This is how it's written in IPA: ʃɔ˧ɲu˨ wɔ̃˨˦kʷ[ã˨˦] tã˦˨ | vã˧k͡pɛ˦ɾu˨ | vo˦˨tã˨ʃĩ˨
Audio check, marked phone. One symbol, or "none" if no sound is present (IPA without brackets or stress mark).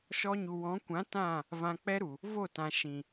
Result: ã˨˦